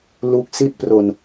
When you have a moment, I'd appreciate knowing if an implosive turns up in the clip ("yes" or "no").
no